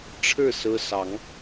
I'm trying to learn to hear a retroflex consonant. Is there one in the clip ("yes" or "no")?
yes